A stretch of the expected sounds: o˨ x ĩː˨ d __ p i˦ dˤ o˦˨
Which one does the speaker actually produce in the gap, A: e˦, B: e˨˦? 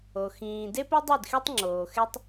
A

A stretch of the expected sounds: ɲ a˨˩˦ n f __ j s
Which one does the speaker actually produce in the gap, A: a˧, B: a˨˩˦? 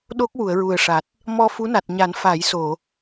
B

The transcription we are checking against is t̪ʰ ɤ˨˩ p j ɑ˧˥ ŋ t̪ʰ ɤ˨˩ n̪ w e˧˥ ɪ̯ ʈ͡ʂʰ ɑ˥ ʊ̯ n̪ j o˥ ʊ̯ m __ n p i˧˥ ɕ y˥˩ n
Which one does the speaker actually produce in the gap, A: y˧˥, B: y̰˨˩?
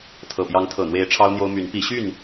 A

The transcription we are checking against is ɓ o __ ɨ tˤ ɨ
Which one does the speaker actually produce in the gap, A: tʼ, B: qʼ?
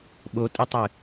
A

